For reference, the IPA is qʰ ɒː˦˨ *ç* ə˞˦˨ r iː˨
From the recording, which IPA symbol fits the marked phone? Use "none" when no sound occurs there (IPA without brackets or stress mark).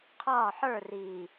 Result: ħ